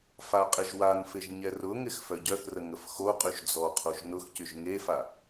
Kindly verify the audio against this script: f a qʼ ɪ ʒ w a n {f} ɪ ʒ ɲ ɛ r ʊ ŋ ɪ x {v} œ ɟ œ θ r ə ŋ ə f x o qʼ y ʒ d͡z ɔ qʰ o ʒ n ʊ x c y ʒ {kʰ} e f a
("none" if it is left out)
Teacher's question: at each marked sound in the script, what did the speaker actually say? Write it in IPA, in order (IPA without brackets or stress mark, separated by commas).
f, f, ŋ